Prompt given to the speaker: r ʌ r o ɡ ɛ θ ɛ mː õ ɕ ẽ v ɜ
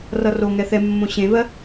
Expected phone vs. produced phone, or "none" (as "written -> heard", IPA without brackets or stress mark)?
ɡ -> ŋ